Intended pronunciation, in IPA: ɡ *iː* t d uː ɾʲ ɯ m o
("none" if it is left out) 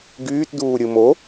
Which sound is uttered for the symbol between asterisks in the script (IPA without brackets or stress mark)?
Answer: yː